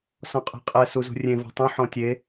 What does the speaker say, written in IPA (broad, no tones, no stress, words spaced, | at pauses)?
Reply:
sɔ̃qʼe̤qʼɛ suzṳrʲẽ vɔ̤tˤũ ħɔ̃tʲe